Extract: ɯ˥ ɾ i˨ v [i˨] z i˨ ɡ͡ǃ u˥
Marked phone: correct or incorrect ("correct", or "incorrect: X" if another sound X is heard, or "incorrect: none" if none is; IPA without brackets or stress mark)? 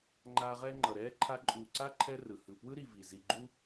incorrect: i˩